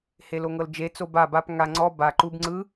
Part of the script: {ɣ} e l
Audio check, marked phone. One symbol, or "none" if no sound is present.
h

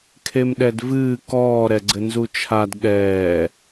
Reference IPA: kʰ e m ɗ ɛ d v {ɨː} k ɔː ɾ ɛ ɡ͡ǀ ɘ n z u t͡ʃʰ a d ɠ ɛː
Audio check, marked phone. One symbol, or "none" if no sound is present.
ɨː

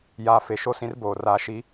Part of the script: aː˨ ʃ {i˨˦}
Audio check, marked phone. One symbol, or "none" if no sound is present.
i˨˦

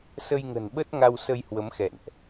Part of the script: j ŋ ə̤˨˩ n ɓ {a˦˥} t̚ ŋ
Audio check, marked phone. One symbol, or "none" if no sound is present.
ə˦˥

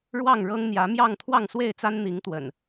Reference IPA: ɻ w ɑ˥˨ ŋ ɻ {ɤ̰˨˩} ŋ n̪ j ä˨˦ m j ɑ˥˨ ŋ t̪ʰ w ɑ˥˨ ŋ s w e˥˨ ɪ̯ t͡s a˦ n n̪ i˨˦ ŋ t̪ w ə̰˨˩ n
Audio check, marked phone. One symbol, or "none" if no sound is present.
ɤ˦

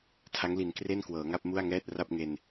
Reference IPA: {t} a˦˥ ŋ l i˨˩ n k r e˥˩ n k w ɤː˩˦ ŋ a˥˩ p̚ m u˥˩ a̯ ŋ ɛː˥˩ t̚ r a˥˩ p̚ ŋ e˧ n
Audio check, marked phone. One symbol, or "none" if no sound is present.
tʰ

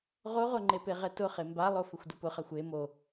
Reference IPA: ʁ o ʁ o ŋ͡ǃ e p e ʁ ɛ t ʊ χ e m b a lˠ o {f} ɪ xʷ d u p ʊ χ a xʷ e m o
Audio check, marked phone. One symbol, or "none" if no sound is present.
f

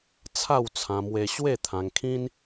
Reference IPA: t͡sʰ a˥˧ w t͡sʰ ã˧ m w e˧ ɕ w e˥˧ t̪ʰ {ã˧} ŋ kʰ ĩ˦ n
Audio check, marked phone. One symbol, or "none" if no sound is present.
ã˧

